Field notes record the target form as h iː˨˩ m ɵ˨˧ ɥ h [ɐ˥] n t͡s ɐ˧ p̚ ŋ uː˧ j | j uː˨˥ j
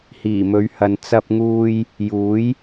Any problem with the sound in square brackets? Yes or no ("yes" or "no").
yes